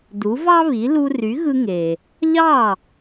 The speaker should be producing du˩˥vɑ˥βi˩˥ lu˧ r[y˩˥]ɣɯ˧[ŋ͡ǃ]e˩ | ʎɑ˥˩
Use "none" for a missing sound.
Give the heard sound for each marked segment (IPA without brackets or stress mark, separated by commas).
y˩˥, ŋ